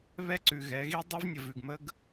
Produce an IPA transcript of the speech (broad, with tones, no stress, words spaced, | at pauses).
βɛ˦ǀʉ˨ɣɛ˨˦ ɣi˦dˤɛ˦vnʲə˨ vʉ˨ɡmə˦ɡ